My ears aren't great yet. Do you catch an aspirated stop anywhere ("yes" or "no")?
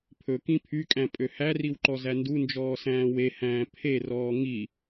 yes